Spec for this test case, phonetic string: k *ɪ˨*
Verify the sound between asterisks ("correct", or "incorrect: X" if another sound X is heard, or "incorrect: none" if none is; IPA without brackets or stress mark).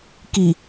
incorrect: i˨